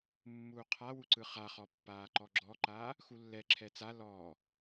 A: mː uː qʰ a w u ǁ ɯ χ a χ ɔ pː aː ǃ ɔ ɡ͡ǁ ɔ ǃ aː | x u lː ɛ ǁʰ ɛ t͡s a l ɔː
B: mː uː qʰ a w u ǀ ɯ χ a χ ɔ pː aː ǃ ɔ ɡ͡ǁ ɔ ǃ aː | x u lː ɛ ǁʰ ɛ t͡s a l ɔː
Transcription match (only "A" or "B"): B